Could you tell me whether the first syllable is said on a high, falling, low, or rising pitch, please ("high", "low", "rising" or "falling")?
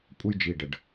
high